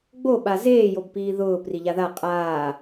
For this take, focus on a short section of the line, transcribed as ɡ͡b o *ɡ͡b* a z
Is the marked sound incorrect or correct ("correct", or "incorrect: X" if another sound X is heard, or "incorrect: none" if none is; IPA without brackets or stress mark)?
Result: incorrect: ɓ